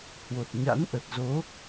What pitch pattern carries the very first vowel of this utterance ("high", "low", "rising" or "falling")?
low